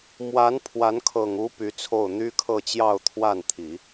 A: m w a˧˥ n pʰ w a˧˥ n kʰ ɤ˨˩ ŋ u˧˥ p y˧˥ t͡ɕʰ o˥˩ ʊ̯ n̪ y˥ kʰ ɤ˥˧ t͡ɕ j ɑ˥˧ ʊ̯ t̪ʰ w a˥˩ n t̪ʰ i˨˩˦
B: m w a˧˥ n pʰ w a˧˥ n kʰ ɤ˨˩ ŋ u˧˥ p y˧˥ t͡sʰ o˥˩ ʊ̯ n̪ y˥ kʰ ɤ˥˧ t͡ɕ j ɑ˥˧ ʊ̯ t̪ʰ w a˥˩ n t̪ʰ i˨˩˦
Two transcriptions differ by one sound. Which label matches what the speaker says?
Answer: B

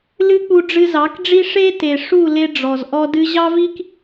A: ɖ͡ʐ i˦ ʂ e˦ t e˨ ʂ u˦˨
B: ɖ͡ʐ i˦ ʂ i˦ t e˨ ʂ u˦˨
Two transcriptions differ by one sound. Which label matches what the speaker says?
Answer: A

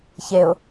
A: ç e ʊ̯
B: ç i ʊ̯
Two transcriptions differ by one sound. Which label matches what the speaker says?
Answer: A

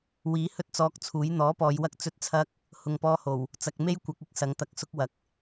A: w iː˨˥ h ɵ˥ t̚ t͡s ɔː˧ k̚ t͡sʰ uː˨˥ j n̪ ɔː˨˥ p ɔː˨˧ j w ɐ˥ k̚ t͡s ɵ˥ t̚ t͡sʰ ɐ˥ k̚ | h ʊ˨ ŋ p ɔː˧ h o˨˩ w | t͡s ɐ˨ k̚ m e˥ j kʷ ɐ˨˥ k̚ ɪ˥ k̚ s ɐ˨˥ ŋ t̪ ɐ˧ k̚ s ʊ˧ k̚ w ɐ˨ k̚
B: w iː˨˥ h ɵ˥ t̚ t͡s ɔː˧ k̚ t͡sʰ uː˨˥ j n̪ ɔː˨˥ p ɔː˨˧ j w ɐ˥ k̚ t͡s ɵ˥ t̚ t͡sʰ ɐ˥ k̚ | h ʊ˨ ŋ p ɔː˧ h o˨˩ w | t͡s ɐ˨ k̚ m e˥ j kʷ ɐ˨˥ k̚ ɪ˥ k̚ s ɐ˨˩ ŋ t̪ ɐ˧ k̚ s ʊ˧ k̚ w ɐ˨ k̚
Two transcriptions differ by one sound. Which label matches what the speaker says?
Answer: A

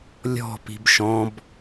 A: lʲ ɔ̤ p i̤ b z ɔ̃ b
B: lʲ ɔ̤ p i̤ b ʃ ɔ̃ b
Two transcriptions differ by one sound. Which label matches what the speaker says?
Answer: B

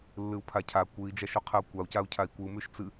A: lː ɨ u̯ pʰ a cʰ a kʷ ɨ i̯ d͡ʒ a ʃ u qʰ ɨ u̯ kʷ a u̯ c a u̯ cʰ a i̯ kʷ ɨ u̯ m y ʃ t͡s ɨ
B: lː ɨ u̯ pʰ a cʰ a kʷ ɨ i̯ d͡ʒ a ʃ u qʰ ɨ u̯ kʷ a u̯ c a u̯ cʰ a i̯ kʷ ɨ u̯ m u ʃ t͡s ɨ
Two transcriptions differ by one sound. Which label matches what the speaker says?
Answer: A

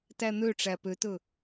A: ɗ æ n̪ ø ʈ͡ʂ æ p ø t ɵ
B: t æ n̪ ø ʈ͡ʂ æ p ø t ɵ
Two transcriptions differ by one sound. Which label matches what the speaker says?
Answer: B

